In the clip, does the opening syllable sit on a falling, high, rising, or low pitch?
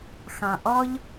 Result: low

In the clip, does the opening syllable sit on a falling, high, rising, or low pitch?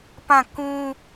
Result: falling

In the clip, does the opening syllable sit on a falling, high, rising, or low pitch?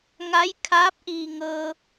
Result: rising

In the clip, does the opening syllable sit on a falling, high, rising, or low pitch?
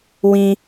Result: high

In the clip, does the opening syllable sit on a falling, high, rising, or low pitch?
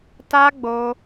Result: high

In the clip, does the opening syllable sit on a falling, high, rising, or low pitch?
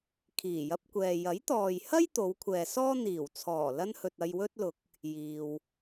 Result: low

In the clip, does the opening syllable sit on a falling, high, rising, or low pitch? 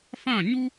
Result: falling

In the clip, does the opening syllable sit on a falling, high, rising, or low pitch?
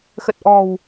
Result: low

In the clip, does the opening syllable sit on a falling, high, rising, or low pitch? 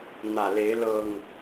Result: low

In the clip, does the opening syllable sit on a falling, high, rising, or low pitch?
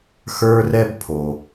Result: high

